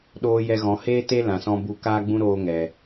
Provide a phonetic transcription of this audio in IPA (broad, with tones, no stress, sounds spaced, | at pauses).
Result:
ɗ oː˧ j ɛ˧ ɣ ɔ̃˨˦ h eː˦ t e˦ l ã˨ s ɔ̃˧ b u˧ k aː˦ ɡ͡b ũ˦ ɾ oː˧ ŋ ɛ˨